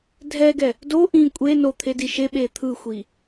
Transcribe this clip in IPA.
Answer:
dʱ ɛ ɡ ɛ | d o ʔ ĩ kʷʼ e n o t̪ʰ e d i ʃ e ɓ e t̪ʰ ɯ xʷ i

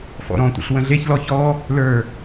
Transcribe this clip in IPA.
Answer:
f ɔ̰ ɾ ɔ̃ tʷ ə̰ ɬ w ə̃ ɮ e ç l ɔ ç ɔ | l ə˞

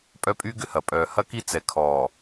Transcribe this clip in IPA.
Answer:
pʼ œ˦ pʼ y˦ ɡ ʏ˦ h ɐ˨ pʼ œː˨ h ɐ˦ k i˦ t͡s ɛ˨ kʰ ɔː˨

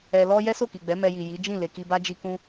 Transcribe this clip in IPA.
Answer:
ɛ˧ l ɔ˦ j ɛ˦ s o˦˨ k i˨ ɡ͡b ɛ˨˦ m ɛ˧ j i˨ j i˨˦ d͡ʒ ĩ˦˨ l e˨ k i˧ b a˦ d͡ʒ i˧ k ũ˧

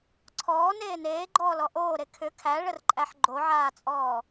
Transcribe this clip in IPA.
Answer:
ǀʰ ɔː n eː n eː ɡ͡ǃ ɔː l ɔ ʔ oː ɾ e kʰ ʏ kʰ æ ɭ ə r ǃʼ æ ħ ɡ͡ǃ o ʕ aː t͡sʼ ɔː

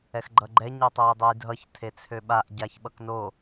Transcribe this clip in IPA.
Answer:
ɛ x ɡ͡ǃ ʌ ɡ͡ǃ ɛ ɲ o tˤ ø j dˤ ø j dʱ ʌ ç tʰ e t͡sʰ ø ɓ a ʔ ɟ a ç ɓ ʌ k n o

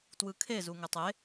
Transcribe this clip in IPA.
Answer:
t w ɯ kʰ e z u ŋ ɛ tˤ e

